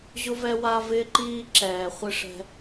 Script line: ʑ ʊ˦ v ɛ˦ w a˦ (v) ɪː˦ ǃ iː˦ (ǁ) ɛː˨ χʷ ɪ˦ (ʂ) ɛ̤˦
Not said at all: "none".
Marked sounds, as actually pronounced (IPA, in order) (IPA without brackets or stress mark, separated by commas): v, ǁ, ʂ